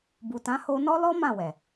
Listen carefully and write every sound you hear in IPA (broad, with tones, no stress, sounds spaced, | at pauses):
b u˨ t ã˨˦ h o˧ n ɔ˦ l ɔ˦ m ã˦˨ w ɛ˨